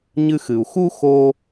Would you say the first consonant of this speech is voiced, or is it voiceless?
voiced